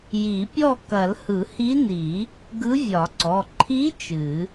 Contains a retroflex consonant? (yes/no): no